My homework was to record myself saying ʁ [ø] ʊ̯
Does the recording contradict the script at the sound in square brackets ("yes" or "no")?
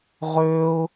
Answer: no